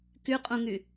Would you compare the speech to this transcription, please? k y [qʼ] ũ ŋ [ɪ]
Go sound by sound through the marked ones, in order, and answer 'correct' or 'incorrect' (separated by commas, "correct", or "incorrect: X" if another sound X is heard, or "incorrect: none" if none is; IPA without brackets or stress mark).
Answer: correct, incorrect: y